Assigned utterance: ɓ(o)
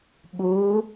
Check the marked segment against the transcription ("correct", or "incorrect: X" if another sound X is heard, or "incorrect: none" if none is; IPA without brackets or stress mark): incorrect: u